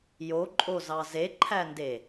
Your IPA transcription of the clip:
j o ǃʼ o z ɑ z e ǃʰ æ n d e

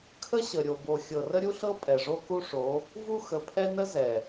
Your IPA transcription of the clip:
kʰ ə˦ ɕ ə˨ ɾʲ o˨ b o˨ xʲ ɤ˨ r ə˦ ɾʲ u˦ ɬ ɤ˦ pʼ ɛ˨ ʐ o˦ k u˦ ʂ o˨˦ | v u˦ x ə˨ pʰ ɛ˦ n ə˦ z ɛ˨

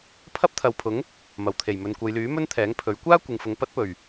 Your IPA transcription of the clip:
pʰ ɐ˥ p̚ t̪ʰ ɐ˨˧ w pʰ ʊ˨˥ ŋ | m ɐ˨˩ w t̪ʰ e˨˩ j m ɵ˨ n kʷ ɐ˨˧ j l yː˨˥ m ɵ˥ n t̪ʰ ɛː˨˥ ŋ pʰ ɵ˨˥ ɥ kʷ aː˥ kʷ ɪ˨ ŋ f ʊ˨ ŋ p ɐ˥ t̚ p ɵ˨˩ ɥ

